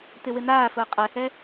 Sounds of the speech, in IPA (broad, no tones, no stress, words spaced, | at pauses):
tɪwɪnaːfʊː qʼɛhɛ